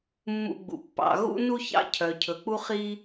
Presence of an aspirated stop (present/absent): present